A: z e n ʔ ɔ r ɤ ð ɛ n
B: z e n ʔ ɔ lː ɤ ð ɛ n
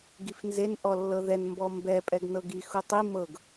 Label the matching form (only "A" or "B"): B